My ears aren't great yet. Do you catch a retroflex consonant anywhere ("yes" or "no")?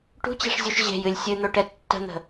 yes